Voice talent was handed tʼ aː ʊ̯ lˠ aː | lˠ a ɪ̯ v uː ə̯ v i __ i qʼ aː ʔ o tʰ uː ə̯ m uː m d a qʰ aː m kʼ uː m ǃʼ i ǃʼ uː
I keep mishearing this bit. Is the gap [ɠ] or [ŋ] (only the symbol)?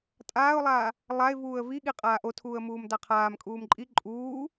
ɠ